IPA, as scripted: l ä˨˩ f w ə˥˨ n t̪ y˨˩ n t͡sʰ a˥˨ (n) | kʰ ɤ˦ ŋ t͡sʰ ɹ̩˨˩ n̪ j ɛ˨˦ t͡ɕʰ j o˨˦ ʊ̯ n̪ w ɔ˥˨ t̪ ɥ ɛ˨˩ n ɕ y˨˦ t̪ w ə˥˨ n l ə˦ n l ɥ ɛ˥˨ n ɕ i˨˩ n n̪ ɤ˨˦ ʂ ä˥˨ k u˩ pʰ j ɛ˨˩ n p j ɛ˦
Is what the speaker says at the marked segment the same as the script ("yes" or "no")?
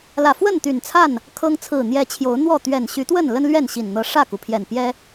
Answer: yes